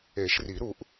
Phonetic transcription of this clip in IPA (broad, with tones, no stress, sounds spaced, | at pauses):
e˨˩˦ ʃ r i˨˩˦ ɾ u˨˩˦ ʔ